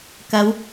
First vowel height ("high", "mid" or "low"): low